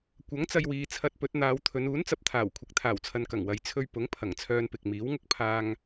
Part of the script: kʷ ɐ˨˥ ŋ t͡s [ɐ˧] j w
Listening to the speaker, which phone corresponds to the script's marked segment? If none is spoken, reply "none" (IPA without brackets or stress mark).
ɐ˧